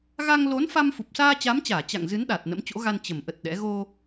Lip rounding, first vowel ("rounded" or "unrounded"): unrounded